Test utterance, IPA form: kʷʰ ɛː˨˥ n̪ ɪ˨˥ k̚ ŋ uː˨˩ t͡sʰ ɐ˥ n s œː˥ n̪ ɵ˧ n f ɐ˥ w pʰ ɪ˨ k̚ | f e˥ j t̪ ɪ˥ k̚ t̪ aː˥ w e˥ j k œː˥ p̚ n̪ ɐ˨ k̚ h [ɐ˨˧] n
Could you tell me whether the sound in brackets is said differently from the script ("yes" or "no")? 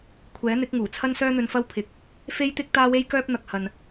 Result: yes